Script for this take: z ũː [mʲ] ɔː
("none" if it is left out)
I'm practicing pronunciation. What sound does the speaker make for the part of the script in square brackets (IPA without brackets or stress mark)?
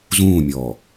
mʲ